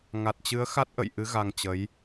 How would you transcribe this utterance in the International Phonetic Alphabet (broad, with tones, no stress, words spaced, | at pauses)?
ŋa˨˩t̚t͡ɕɨ˨˦ə̯xa˦˥t̚ʔə̰˧˨j ʔɨ˨˦ ɣa˧ŋt͡ɕə˨˦j